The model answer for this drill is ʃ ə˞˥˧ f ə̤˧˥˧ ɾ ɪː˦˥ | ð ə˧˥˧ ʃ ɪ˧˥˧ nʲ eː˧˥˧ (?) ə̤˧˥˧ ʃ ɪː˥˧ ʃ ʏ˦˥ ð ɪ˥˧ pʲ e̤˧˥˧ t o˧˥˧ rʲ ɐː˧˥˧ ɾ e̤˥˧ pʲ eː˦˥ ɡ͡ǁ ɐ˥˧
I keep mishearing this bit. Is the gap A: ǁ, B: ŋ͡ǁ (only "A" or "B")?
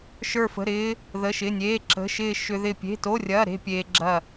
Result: A